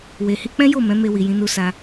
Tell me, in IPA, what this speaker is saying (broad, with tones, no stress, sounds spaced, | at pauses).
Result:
w e˨ h i˧ k͡p ɛ̃˦ j o˦˨ m ɛ̃˨˦ m e˧ w i˨ j ĩ˨˦ n u˧ s a˧